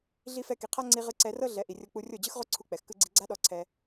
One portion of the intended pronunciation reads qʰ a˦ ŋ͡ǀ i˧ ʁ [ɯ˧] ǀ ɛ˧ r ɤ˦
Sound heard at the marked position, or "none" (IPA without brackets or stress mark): ɯ˧